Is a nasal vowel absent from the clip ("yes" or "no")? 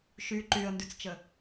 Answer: yes